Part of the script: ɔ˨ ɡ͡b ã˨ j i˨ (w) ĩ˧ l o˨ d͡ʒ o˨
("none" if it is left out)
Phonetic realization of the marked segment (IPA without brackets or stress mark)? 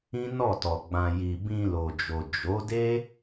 b